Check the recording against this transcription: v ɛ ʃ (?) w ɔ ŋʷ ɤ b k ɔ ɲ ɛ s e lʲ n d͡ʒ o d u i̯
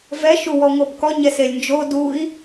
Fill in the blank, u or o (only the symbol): u